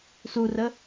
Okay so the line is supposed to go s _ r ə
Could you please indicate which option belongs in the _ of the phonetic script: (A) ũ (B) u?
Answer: B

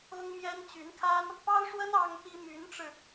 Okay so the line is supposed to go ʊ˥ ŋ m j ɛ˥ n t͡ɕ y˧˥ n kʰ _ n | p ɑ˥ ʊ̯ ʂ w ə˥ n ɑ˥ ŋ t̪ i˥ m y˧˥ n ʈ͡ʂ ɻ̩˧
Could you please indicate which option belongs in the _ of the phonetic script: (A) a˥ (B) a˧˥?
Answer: A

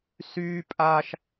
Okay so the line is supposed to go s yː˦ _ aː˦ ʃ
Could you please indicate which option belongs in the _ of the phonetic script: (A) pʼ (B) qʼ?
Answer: A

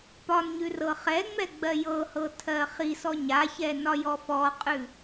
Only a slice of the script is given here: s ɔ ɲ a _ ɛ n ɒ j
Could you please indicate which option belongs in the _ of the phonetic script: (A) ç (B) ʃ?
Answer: A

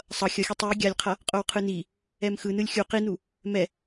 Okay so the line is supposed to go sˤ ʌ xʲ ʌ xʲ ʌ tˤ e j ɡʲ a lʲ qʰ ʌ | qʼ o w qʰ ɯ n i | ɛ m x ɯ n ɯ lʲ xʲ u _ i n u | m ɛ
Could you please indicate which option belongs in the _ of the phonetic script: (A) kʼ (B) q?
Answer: B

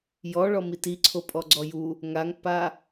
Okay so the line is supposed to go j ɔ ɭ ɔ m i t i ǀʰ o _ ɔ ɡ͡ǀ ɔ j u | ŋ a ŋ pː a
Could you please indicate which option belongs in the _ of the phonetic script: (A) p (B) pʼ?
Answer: B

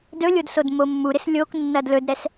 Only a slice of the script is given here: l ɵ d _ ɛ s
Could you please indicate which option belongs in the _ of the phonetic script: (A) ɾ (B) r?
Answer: A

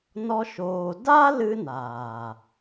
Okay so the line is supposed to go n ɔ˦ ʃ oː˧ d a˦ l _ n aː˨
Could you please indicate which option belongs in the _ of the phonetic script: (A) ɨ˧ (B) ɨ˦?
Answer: B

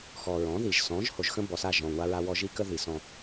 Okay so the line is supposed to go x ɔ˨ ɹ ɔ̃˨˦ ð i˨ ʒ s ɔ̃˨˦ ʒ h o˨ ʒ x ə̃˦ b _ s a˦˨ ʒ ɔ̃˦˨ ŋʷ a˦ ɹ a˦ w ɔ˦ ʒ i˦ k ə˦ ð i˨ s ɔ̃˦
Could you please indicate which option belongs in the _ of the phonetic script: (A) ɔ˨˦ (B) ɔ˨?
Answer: B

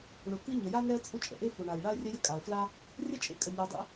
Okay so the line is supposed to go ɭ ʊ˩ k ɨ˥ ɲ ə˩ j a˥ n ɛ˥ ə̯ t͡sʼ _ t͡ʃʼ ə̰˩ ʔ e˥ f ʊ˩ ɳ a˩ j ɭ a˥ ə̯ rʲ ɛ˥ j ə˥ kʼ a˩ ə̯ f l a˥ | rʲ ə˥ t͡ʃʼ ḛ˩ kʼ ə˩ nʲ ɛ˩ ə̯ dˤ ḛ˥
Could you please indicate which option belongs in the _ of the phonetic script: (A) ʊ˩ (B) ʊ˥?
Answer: B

